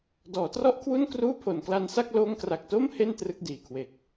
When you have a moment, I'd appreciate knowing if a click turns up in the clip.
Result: no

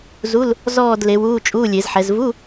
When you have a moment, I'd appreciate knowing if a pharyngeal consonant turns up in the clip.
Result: yes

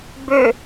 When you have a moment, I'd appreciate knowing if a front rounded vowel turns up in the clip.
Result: yes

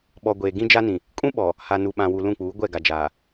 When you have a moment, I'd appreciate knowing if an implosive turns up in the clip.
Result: yes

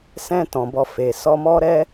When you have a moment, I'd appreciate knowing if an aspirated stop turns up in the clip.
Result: no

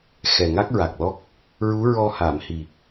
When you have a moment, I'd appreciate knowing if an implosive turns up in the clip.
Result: no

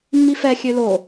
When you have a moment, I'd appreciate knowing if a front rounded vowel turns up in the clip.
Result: yes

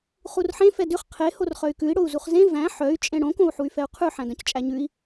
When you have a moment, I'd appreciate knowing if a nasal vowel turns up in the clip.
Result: yes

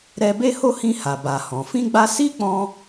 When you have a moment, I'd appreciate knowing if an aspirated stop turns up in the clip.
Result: no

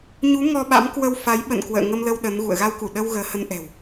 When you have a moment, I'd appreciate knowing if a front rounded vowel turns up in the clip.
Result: no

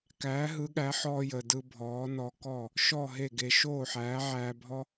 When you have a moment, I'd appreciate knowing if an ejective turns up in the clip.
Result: no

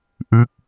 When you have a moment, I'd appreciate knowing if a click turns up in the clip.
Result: no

